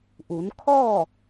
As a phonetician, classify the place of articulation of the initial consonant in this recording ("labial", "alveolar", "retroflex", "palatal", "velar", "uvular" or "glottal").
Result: glottal